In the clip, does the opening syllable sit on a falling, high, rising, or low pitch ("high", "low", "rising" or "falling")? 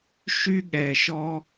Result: high